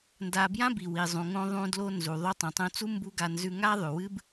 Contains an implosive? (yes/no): no